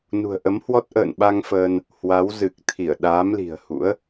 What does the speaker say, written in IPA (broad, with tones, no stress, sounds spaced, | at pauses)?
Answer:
n ṳ˨˩ ə̯ ʔ ə˨˦ m h w ɔ˦˥ t̚ ʔ ə̰ː˧˨ n ɓ a˧ ŋ f əː˧ n | h w a˨˦ w z ɨ˨˩ k̚ t̪ʰ i˧˩ ə̯ ɗ aː˨˦ m l i̤˨˩ ə̯ h ṵ˧˥ ə̯